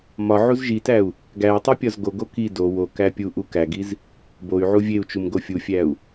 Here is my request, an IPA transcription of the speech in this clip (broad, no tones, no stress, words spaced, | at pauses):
mɒ ʕuzʒitæu̯ | ɡæu̯tˤi pʲɒzɡoɡo ki do wokæ pʲu ʔukæɡiz | boy̯ʕu vʲeu̯t͡ʃum ɡofʲufʲæu̯